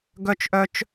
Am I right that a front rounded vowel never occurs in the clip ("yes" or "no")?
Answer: no